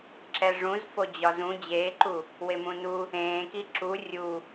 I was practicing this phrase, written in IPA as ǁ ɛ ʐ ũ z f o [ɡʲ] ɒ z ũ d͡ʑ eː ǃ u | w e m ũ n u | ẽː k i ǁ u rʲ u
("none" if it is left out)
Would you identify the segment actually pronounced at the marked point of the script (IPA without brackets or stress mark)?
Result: d͡ʑ